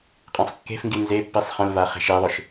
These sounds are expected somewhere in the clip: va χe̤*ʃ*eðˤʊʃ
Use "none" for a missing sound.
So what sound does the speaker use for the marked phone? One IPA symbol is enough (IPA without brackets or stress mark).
ʃ